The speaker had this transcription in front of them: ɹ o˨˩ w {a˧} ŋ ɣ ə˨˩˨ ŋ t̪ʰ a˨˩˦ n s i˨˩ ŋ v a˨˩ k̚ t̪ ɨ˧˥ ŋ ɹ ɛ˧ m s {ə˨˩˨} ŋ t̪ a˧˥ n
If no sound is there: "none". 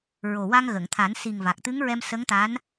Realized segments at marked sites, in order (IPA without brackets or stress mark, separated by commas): a˧, ə˧˥